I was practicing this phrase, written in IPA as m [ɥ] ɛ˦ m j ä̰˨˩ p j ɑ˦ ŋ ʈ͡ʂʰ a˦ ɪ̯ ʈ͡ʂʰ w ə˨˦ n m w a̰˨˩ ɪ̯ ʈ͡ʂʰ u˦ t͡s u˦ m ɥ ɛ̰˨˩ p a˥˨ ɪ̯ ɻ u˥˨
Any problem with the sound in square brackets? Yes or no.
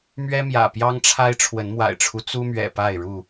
no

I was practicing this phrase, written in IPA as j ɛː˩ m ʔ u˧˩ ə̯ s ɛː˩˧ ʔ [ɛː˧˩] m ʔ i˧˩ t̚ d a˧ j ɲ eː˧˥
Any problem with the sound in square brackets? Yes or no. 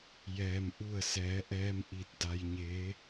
yes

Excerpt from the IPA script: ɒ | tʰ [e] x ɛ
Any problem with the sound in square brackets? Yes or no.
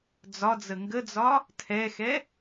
yes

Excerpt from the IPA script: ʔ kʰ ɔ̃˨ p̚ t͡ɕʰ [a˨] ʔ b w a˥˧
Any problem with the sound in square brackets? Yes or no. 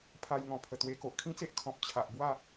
no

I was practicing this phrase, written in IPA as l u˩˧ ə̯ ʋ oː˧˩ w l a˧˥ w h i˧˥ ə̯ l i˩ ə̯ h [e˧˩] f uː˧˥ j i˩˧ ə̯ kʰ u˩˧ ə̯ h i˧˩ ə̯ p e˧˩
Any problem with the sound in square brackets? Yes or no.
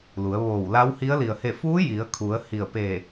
no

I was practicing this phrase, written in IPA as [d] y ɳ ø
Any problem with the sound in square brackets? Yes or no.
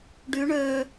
yes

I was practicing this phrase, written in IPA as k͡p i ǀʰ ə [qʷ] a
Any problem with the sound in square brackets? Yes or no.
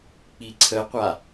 no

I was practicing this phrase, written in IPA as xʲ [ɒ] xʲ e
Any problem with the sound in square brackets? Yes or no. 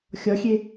no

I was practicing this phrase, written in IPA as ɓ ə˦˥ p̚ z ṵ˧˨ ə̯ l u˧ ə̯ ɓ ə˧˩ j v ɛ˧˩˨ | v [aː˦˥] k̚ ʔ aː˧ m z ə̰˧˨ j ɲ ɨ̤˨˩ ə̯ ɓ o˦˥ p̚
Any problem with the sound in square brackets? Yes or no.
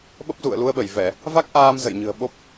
yes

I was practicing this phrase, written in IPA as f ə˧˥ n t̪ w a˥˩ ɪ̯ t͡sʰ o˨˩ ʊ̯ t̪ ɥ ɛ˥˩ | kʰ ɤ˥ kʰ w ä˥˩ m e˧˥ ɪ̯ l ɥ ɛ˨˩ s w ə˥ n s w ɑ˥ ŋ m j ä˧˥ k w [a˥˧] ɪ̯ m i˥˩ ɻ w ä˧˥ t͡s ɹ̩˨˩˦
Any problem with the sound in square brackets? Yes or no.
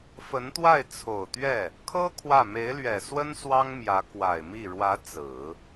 yes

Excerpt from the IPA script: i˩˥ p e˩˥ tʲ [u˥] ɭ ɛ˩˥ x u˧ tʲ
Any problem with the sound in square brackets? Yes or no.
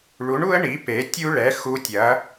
no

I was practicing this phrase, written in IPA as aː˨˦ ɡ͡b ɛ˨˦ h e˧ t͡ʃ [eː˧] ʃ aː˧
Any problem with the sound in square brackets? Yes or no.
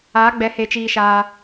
yes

